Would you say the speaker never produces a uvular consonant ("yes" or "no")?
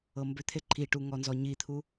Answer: yes